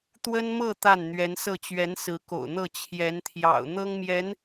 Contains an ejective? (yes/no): no